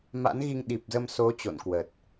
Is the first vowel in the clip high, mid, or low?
low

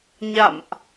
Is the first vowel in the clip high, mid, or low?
low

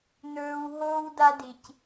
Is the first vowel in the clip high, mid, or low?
mid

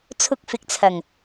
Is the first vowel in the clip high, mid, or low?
high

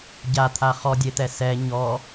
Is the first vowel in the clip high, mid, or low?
low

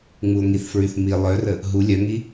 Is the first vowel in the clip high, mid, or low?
high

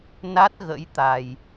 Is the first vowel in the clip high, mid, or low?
low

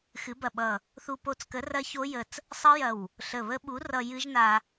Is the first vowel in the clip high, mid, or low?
high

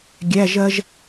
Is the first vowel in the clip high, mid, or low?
low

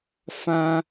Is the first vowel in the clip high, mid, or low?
low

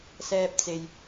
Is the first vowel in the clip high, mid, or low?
mid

